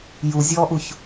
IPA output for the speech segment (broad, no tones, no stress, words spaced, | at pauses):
juzʲɔːʔuç